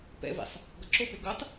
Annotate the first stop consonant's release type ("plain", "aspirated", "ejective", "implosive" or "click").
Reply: plain